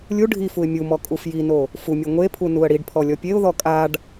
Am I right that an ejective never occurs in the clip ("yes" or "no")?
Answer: no